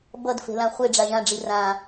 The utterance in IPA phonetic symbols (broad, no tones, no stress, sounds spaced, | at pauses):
b ʌ d f e̤ l ã χʷ e ɖ͡ʐ a ʒ ã ɖ͡ʐ i r ã